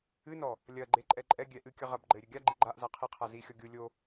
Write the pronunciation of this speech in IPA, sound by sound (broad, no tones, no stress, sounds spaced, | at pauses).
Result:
ɨ n ɔ | lʲ ɐ ɡ͡ǃ e ǃʼ ɛ ǃʼ ɛ ɡʲ ɛ ʔ ɨ kʲ ɐ ʁ ɐ b ɡ͡ǃ ɘ e̯ ɾʲ ɘ ɡʲ a ɡ͡ǃ i ɡ͡ǃ a ʔ z a qʰ i qʰ a z i xʲ ɔ ɡʲ u lʲ o